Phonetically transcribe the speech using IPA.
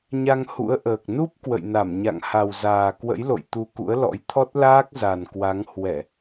ɲ a˧ ŋ h ṵ˧˥ ə̯ ʔ əː˨˩ k̚ n u˦˥ p̚ k w ə̰˧˨ j n a˧˩ m ɲ a̰˧˨ ŋ h a˨˩ w z aː˨˩ k w ə̰˧˥ j l o̰˧˨ j t̪ u˧ k ṵ˧˥ ə̯ l ɔ̰˧˥ j t̪ʰ ɔ˦˥ t̚ l aː˦˥ k̚ z a˨˩ n k w a˨˦ ŋ h w ɛ˧˩˨

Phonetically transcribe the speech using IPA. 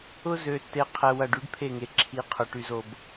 ʊ˦ z ø˨ tː e˨ qʰ ɛ˨ w ɐ˨ ɖ y˦ ɖ pʰ e˦˨ ŋ e˨ ǁʰ i˨˦ qʰ ʊ˨ ʈ y˨ z o˨ b

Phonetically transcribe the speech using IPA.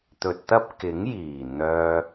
t̪ ɵ˨ t̚ t̪ ɐ˥ p̚ k ɪ˨˥ ŋ j iː˨˩ n̪ œː˧

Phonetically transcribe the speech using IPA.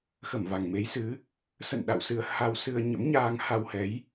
x ə˧˩ m v a˨˩ ŋ m e˨˦ j s ɨ˨˦ | s ə̰˧˨ n ɗ a̰˧˨ w s ɨ˧ ə̯ h a˧ w s ɨ˧ ə̯ ɲ ə̰˧˥ m ɲ aː˧ ŋ h a˧ w h ɛ˨˦ j

